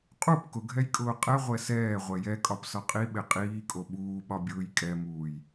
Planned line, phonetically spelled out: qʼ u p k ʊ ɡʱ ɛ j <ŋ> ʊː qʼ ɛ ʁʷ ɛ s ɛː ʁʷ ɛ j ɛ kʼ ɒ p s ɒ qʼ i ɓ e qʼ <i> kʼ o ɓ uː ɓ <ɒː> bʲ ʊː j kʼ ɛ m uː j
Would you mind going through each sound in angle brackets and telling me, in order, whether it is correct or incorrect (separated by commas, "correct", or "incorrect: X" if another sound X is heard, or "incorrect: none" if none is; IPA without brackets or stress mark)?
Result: incorrect: kʼ, incorrect: iː, incorrect: ɒ